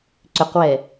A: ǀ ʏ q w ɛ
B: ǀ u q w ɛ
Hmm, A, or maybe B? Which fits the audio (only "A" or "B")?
A